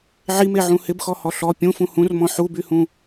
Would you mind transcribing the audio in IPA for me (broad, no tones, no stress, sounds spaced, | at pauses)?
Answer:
ʕ i m e ʕ ũ h ɪ b x ɔ h ɔ ɬ ɔ pʲ ũ f ũ h ũ r m ɔ̃ ħ u b y h ũ